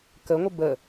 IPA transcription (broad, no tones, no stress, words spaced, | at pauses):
kəŋʷə bə